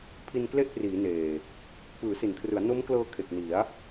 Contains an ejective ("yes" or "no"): no